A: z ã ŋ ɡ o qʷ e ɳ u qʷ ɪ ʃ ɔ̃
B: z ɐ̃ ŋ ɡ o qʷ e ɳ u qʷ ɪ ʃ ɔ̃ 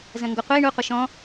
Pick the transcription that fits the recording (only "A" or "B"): B